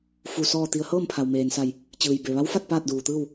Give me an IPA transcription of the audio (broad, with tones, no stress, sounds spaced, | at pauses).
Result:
f u˧˩ s ɔː˥˨ t̪ i˧ ə̯ h ɤː˥˨ m pʰ a˩ w m eː˩ n s a˧˩ j | t͡ɕ ɯː˩ j b e˩ ʋ a˧˥ w f a˥˨ t̚ p aː˥˨ t̚ d uː˩ t̪ ɯː˥˨ w